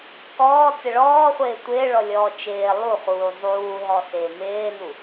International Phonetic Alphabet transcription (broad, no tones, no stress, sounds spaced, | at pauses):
k ɔː t͡s ɪ ɭ ɔː χʷ ɪː tʷ ɪː ɭ ɔ lʲ ɔː t͡ʃ ɪː lˠ u χ uː zˤ uː ɦ ɔ s ɪː m ɪː n u